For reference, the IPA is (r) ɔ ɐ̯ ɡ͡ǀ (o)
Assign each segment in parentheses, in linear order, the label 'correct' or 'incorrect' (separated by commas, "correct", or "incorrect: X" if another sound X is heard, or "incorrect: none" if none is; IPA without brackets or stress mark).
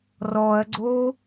correct, correct